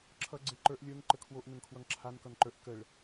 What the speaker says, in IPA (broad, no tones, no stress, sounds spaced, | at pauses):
ǁʰ ʌ ɡ͡ǀ e ǃ ə˞ ʔ lʲ ə˞ ŋ ǃ ə kʰ w o ʔ n ə ŋ kʰ w ʌ ŋ ǁʰ a n k ʌ n ǃ ə˞ ʔ k ə ɭ